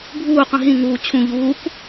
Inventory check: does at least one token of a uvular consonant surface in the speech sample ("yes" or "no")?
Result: yes